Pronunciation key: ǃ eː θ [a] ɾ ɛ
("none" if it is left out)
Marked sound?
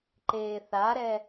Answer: a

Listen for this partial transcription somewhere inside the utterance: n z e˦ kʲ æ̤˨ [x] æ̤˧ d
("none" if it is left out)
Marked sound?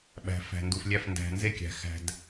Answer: x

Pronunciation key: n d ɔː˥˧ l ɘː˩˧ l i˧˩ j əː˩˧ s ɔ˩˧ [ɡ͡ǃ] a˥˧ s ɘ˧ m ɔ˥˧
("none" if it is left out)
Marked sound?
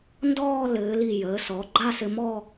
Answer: ɡ͡ǃ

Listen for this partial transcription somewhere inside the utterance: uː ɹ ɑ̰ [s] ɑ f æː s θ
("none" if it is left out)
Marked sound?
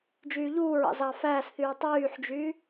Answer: z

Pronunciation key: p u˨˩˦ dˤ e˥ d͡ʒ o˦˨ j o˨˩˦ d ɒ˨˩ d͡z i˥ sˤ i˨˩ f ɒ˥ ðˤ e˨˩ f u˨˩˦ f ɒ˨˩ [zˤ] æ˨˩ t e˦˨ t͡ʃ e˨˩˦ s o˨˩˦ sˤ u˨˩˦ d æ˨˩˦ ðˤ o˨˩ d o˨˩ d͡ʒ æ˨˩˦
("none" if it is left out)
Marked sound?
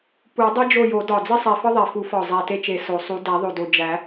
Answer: zˤ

